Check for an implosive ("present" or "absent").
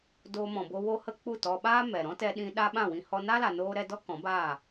present